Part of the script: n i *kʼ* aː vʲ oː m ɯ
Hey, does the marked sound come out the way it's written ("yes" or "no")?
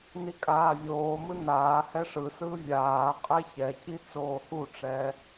yes